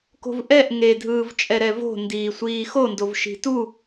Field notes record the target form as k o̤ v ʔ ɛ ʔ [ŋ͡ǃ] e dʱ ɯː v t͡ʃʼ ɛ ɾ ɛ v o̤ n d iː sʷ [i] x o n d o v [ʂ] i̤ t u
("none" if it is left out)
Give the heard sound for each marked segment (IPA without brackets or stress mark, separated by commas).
ŋ, iː, ʃ